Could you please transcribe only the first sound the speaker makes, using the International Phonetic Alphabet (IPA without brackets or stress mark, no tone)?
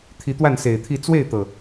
t̪ʰ